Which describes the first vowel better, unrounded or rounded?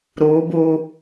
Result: rounded